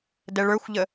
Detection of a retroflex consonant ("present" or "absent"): present